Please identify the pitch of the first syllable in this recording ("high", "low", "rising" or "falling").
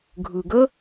low